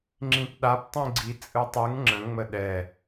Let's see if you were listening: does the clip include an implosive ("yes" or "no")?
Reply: yes